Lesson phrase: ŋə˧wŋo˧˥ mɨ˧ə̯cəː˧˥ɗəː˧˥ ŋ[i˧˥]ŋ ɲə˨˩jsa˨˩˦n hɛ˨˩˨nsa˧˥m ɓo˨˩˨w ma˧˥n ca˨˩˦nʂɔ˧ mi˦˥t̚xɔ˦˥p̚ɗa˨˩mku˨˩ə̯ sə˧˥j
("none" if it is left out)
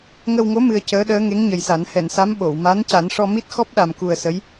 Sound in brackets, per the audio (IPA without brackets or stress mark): e˧˥